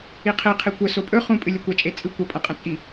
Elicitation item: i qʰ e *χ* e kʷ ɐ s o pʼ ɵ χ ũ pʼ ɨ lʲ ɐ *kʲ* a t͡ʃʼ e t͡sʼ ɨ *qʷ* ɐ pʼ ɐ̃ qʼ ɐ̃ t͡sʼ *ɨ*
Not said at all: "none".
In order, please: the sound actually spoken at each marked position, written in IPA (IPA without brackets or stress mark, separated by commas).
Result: qʰ, kʷ, kʷ, i